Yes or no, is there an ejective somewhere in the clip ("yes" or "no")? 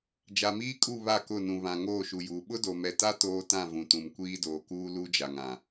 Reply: yes